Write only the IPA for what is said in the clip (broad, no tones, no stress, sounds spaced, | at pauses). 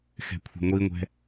x ɛ̤ kʷʰ ə̤ ŋʷ i ŋʷ ɛ̤